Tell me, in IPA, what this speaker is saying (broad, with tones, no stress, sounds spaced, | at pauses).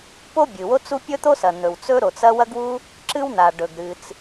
p o˥ bʲ ɨ˩ w o˥ t͡s u˥ pʲ ɵ˥ t̪ o˥ s ɐ˩ n̪ ɵ˩ w t͡s ɵ˥ ɾ o˩ t͡s ɐ˥ w ɐ˥ ɡ w u˥ | ǁ ɨ˥ w n̪ a˩ ɖ ɵ˩ ɡ ɾ ɨ˩ t͡s